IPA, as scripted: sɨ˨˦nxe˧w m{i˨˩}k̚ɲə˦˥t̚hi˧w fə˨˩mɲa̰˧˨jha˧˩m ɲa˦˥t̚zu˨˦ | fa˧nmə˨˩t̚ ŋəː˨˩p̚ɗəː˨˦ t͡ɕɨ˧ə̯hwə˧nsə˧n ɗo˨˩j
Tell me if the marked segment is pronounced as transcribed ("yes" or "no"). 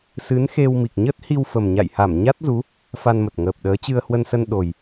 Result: yes